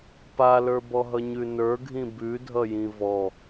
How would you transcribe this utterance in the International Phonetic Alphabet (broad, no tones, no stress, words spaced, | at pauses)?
palə˞bɔɦʌ ɲʉnə˞ɡʱĩ bʉdʱʌjĩ vɔ